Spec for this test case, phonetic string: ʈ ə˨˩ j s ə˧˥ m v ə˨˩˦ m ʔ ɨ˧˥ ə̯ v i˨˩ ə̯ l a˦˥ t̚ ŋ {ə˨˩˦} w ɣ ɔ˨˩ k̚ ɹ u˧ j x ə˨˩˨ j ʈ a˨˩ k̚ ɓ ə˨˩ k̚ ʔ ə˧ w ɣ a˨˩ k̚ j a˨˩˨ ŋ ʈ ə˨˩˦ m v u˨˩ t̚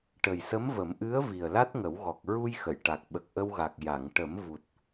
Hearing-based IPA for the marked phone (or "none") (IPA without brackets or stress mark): ə˨˩˦